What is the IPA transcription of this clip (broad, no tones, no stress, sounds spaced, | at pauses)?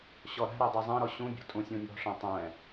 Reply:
ɕ ɔ ɾ æ̤ ɾ ɛ dˤ ɛ zˤ ɛ̃ ɾ ɔ ɕ ũ bʲ ɔ̤ tʼ ũ sʲ ũ nʲ ɔ̤ ʂ ɛ̃ tˤ ɛ̃